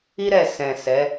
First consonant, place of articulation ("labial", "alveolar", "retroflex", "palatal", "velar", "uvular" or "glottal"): alveolar